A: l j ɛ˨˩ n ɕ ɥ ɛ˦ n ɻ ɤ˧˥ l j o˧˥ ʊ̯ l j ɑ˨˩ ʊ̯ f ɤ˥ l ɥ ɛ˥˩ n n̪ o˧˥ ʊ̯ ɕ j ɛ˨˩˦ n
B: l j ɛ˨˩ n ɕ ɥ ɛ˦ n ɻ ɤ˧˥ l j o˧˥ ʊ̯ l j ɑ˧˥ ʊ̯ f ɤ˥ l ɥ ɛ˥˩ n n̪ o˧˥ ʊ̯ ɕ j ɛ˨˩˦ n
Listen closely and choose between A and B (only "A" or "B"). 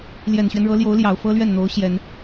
A